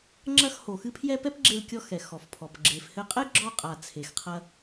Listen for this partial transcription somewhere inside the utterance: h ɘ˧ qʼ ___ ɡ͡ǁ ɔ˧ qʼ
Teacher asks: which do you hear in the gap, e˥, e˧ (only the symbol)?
e˥